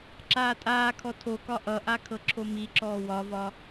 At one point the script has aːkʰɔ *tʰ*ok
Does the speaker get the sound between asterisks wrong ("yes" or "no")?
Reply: no